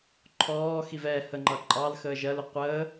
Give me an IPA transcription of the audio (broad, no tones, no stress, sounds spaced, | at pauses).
ǃʰ ɔː x i v ɛ h ə ŋ͡ǃ ʌ ǃʼ ɑ l x əː ʒ ɜ l ʊ qʷ əː